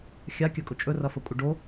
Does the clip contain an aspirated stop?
no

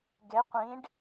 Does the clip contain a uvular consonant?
yes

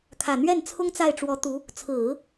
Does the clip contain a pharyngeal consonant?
no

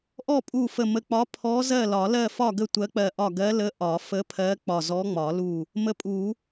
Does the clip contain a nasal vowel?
no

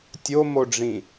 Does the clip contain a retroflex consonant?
yes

